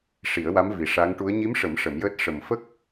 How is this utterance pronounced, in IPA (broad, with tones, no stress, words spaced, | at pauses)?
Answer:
ʂi˨˩˦ə̯wa˧˥mvi˨˩ ʂa˧˥ŋ ʈu˧˥ə̯ ɲi˧˥mʂə˨˩˦m ʂə˨˩˦mjəː˦˥t̚ ʂə˨˩mfə˦˥k̚